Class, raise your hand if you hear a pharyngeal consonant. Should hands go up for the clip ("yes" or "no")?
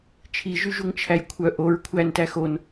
no